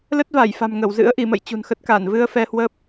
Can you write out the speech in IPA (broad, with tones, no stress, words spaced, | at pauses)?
lə˦˥t̚va˧˩jfa̤˨˩m ŋə˧˩wzɨ̰˧˥ə̯ ʔi˧˩mə̰˧˨j t͡ɕṳ˨˩nxə˦˥t̚ ka˧˩n vɨ˧ə̯ fɛ˧hwə˦˥p̚